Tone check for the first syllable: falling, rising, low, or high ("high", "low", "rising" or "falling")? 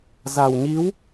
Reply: low